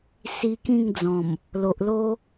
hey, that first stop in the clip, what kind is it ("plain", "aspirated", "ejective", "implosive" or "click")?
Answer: plain